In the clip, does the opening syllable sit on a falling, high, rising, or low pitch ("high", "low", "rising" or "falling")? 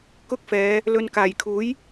high